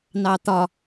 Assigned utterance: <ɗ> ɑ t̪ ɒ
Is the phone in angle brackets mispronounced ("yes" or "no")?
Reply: yes